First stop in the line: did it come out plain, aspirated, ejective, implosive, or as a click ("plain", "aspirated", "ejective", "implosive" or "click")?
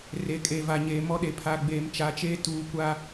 ejective